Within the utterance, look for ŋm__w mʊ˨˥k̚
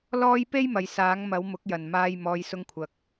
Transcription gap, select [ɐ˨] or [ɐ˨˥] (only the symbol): ɐ˨˥